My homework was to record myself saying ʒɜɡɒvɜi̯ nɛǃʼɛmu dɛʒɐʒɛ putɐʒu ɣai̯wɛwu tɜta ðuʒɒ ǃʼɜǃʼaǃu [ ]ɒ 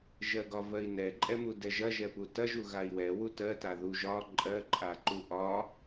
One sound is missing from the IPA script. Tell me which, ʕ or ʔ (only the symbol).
ʔ